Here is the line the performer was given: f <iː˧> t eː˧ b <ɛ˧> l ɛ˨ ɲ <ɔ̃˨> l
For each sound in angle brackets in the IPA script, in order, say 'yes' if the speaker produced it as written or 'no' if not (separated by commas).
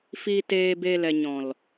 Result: yes, no, yes